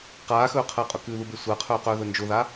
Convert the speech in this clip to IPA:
q aː x ɵː qʰ əː qʼ ʊ k ʉ ð u b e sʷ əː qʰ ɵː q ɵː ð ɵ n d͡ʒ ʊ ð a

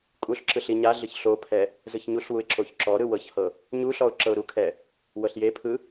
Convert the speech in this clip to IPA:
kʼ u ɬ ǁ ɯ ɬ i ɲ a ɮ ɯ ç ɬ o pʰ ɛ | z ɯ ç ɲ u ɬ w u ɪ̯ ǁ o ç ǁ ɔ ɾ ɯ w ɤ ç h ɤ | ɲ u ɬ ɔ ʊ̯ ǁ ɤ ʊ̯ ɾ u kʰ ɛ | w ɤ ɬ j e pʰ ɯ

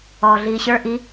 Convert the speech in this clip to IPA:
ɔː ɮ iː ɕ ə˞ ʔ i

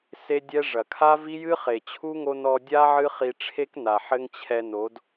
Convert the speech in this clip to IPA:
s e˦ dʲ ɛ˦ ʐ ɐ˨ kʰ a˦ v i˦ j ɨ˦ χ e˨ t͡ɕʰ u˦ ŋ o˧ n ɔ˧ dʲ a˦ ʕ ɨ˦ χ i˧ ʈ͡ʂʰ e˦ k n a˨ ħ ɘ˦ ŋ t͡ɕʰ ɛ˧ n o˨˦ d

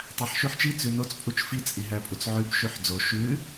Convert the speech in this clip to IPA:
tˤ æ ħ ʃ ʉ ħ t͡ʃ i t͡s ʉ n o t͡s pʼ u t͡ʃ f i t͡sʼ i ɦ æ pʼ u t͡s ʕ ʉ b ʃ ʉ ħ d͡z o ʃ ʉ

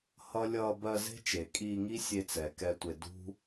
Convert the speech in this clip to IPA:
h ʌ˦ lʲ ʌː˧ b ɜ˧ z e̤˦ t͡ʃ e˨ kʼ iː˧ ŋ i˦ sʲ e˧ t͡s ɛ˨ k ɛ˧ tʷ e˧ d ṳ˦

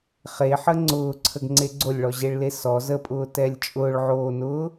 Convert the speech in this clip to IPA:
χ e ħ ə ŋ͡ǀ ʊː ǀʰ ə ɡ ŋ͡ǀ e ɡ͡ǀ o lʲ ɭ ɔ ʑ e ɭ l e s ɔ z ə pʼ ʊː t ɛ lʲ t͡ʃʼ ʊː ɭ ʕ oː n ʊː

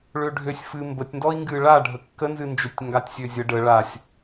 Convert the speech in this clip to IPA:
ɭ ø ɖʱ ø sʲ f ɨ m b ə tʲ n d ɔ i̯ ŋ ɡ ɨ ɭ a ɖʱ ə kː ə n z ɨ n d͡ʒ ø tʲ ŋ ɡ a tʲ sʲ ø zʲ ə ɖ ə ɭ a sʲ

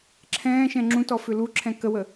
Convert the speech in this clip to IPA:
ǁʰ ɛ̃ː ʃ ɛ̃ ŋ͡ǁ ũ t ɔ f ʏ l u ǁʰ ɛ̃ k ə w ə

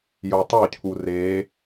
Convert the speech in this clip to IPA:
j o tˤ o cʰ u r e

